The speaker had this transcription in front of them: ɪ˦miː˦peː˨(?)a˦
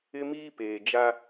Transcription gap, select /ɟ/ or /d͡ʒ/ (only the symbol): d͡ʒ